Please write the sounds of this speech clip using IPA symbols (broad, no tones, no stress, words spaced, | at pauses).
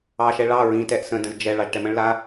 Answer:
ɑʃɛ ɭɑ ɹĩ tɛʔsə̃də̃z d͡ʒɛ ɭɑʒʈɛmə̃ɭla